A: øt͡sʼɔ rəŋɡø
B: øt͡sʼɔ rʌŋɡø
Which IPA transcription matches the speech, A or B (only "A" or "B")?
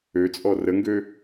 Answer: A